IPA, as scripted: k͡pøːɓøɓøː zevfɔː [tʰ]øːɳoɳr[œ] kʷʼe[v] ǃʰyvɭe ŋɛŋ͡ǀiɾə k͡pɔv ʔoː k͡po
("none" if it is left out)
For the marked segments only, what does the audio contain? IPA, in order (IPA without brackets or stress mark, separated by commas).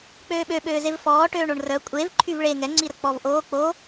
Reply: ʈ, œ, v